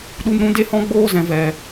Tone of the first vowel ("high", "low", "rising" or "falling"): high